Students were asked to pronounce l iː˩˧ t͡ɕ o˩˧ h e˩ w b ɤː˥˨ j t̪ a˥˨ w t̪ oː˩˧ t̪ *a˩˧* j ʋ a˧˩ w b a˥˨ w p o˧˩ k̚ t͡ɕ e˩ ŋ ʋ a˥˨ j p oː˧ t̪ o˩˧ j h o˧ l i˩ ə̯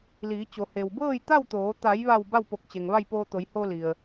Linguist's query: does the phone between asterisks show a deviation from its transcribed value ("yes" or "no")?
no